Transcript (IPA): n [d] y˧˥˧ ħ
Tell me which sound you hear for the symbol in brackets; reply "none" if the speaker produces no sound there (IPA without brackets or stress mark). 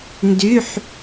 d